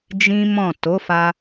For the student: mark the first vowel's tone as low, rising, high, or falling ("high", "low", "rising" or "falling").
high